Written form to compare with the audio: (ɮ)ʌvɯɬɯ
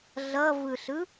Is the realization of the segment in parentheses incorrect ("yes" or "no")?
no